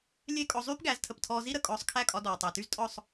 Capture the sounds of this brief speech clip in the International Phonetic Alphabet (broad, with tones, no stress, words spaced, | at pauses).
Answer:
lʲe˥˩kʼɔ˧ zˤyː˥pɡæ˩˥ztʰə˩ptʰɔː˧ zi˥ɾə˥˩ kʼɔː˧sˤkʰæ˥˩kʼɒ˧ dɔː˩tˤæ˩ty˥z tʼɔ˥˩sˤ